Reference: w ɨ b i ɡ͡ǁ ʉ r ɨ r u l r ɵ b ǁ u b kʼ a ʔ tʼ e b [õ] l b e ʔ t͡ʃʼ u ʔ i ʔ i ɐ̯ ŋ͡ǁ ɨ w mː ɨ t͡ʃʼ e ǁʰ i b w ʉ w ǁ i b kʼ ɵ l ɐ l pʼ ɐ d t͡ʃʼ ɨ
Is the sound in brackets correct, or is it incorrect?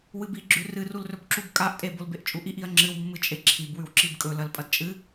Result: incorrect